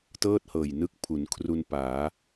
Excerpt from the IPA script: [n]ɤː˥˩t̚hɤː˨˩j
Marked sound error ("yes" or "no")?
yes